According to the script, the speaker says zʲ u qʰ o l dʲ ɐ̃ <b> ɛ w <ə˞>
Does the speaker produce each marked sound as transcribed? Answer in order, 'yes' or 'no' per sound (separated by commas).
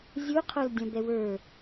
yes, yes